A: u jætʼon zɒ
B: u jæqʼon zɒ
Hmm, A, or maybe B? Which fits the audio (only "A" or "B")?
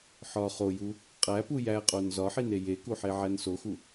B